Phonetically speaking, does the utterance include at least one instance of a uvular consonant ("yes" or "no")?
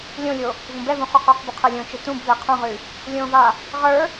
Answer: yes